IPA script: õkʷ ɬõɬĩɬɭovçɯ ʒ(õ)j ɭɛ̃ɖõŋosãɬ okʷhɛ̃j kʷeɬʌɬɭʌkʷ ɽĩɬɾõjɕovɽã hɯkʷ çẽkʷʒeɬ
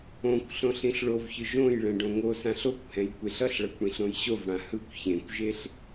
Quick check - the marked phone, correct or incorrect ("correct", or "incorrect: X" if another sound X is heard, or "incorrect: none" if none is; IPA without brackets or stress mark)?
correct